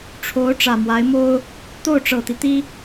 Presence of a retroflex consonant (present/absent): present